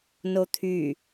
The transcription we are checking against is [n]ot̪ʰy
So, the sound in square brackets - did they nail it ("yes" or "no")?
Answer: yes